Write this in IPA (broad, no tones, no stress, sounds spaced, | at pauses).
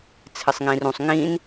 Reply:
t͡sʰ ɪ sˤ ŋ ĩː r ũ sˤ ŋ ĩː n